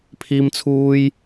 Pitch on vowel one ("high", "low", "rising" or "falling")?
high